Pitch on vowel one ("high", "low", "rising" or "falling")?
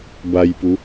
low